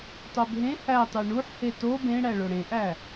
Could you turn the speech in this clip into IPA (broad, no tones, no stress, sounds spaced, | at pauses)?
tˤ o b ɦ ẽ h æ tˤ e ɳ u ħ h e t o b ẽ ɽ æ ɭ o ɽ ẽ ʔ æ